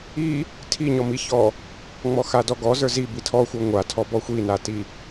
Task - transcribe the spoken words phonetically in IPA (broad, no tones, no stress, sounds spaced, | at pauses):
i | tʰ i ɲ ɔ m i ç ɔ | ŋ͡m ɔ x a d ɔ ɡ ɔ z ə˞ z i b i tʰ ɔ xʷ ə˞ ŋʷ a tʰ ɔ b ɔ xʷ i n a t i